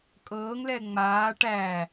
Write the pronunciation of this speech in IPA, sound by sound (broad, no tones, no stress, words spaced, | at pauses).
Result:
kʼɤːŋlɛ ŋ͡maː ʈæ